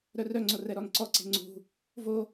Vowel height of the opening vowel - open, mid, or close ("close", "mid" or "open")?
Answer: mid